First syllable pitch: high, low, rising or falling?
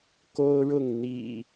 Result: high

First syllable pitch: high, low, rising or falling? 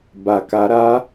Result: low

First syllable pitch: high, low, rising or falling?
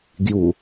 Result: low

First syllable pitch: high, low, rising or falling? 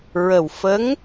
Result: low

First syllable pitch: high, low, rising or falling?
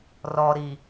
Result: low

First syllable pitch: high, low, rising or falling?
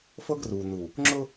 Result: high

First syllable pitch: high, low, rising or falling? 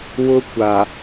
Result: high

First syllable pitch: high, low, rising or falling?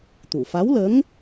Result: low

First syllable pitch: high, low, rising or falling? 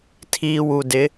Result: low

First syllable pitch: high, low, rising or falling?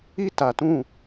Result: high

